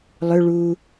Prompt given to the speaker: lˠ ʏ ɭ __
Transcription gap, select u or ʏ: u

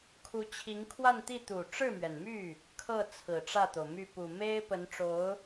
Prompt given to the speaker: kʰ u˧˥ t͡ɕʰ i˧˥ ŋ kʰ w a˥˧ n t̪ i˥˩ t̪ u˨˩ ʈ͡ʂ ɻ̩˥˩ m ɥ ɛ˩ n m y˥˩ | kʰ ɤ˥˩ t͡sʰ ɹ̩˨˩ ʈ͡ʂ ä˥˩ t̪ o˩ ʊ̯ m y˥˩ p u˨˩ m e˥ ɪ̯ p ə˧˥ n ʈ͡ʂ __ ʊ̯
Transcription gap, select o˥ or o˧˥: o˧˥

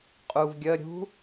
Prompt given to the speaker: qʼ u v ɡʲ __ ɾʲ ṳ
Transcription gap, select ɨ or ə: ə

